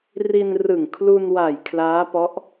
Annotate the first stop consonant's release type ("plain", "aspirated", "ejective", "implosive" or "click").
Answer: aspirated